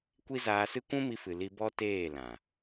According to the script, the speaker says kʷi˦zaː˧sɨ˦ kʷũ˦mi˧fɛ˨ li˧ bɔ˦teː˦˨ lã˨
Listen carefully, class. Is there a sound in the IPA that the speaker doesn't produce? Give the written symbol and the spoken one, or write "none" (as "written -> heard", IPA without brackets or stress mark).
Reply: ɛ˨ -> ɨ˨